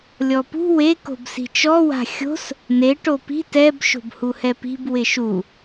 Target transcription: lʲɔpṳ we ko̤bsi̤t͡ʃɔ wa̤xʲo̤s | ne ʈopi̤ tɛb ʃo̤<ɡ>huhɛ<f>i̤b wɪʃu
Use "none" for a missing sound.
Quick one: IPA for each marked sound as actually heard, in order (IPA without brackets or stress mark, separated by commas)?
b, p